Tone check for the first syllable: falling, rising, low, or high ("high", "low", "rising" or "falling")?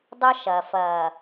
high